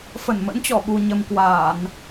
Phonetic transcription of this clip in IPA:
f ə˧˩ n m ə̰˧˥ n t͡ɕ ɔ˧˩ ɓ u˨˩ ɲ ə˨˩ m k w aː˧˩˨ n

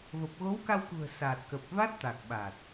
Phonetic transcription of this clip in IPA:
v ə˨˩ p̚ ɣ o˨˦ w k a˧ w k ṳ˨˩ ə̯ s a˨˩ t̚ k ə˨˩ p̚ v a˦˥ t̚ t̪ a˨˩ k̚ ɓ a˨˩ t̚

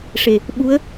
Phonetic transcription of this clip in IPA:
ʂ e˨˩ | ɓ u˧˥ ə̯

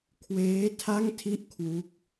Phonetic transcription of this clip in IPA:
kʰ w eː˦˥ tʰ a˥˩ ŋ tʰ i˥˩ ʔ kʰ w u˦˥ k̚

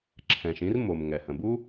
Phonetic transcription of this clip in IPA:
ǁʰ ɛ̃˩ ʃ ĩ˥ r m o˩ m ŋ ɛ˩ h ə̃˩ b u˥

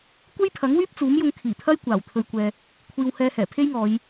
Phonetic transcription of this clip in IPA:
kʷ e˥ j pʰ ɐ˨˥ ŋ w yː˥ p̚ t͡s uː˨˥ m j ʊ˧ ŋ kʰ iː˨˩ t̪ʰ ɐ˥ j kʷ aː˨˩ w t̪ʰ ɵ˧ ɥ kʷ ɛː˧ | kʷʰ iː˨ w h ɛː˧ h ɛː˨˩ pʰ e˥ j ŋ ɔː˨˧ j

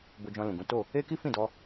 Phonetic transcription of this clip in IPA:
b o˧ d͡ʒ ɔ̃˧ l ũ˨ ɡ ũ˨˦ t o˦˨ | e˦ k i˦ f ĩ˦˨ d ɔ˧

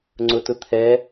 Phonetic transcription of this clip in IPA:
ŋ͡ǀ ʊ t ʊ t̪ʰ ɛ

